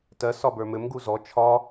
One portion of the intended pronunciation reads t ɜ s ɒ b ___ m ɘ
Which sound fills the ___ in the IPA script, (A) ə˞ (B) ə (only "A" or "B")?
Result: A